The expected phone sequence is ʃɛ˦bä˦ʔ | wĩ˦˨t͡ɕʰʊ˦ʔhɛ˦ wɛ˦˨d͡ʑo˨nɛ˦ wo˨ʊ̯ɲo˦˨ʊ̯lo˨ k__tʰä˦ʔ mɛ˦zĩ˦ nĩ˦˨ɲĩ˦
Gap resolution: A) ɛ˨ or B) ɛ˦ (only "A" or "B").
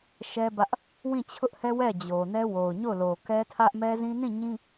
B